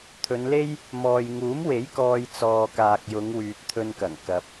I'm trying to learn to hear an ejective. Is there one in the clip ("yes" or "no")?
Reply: no